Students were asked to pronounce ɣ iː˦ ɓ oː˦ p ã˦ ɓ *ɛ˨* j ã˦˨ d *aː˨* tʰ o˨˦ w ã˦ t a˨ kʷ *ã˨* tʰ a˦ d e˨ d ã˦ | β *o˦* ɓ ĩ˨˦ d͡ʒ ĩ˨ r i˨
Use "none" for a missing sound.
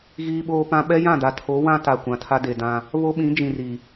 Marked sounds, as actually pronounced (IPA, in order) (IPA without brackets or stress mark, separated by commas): ɛ˦, a˨, ã˨, o˦